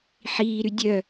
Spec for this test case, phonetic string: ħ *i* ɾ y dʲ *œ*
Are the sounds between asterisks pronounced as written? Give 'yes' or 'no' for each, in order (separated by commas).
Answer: no, yes